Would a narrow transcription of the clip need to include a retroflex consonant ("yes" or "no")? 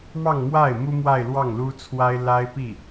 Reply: no